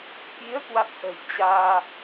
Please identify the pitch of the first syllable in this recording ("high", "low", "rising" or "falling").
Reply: rising